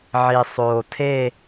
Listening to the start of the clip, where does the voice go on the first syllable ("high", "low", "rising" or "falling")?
low